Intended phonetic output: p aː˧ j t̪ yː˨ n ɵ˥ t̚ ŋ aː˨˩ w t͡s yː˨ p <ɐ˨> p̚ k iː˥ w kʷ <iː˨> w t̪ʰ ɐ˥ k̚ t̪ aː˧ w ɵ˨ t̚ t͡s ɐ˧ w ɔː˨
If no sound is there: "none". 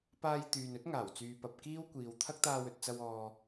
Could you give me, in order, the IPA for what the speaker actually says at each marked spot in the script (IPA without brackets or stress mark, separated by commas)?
ɐ˨, iː˨